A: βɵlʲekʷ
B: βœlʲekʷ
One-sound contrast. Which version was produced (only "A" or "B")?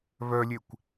B